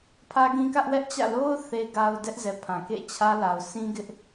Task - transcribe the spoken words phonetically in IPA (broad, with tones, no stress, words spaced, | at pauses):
pʰä˦ɡĩ˦kä˦ʔ wɛ˦ʔt͡ɕä̰˦˨lo˦ʊ̯ θe˨ɡa˨ʊ̯ dɛ˦ʔzɛ˨ pʰã˨kḛ˦˨ t͡ɕʰä˦la˨ʊ̯ sĩ˦ ɡɪ˦ʔ